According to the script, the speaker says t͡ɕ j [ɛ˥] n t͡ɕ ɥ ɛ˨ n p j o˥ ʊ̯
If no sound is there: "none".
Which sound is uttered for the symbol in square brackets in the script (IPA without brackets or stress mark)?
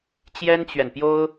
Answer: ɛ˥